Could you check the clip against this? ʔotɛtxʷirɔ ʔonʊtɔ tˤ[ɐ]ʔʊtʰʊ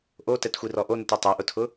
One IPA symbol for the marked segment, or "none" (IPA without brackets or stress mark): a